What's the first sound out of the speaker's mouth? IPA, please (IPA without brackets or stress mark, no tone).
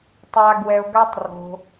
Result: tˤ